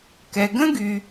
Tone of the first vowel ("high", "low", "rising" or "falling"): low